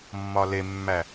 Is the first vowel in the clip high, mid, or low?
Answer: low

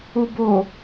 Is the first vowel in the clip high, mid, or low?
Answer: high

